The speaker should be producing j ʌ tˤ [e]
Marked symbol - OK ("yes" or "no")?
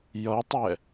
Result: no